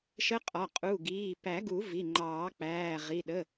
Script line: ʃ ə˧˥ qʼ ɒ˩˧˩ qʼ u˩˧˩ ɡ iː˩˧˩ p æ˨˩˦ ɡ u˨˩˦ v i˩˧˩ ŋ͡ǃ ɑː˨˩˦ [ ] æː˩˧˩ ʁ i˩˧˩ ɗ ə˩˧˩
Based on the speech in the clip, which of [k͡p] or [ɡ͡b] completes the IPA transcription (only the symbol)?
k͡p